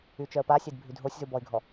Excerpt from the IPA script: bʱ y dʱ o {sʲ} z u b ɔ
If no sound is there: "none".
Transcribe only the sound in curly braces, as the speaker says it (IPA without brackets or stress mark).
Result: sʲ